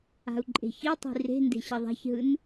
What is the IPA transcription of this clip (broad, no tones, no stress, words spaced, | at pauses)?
a̤u̯ǃʼe̤çitˤi̤ re̤nde̤ ɕʌðˤa̤çɦɯn